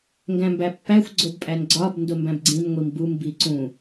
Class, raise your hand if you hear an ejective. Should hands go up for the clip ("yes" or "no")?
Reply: yes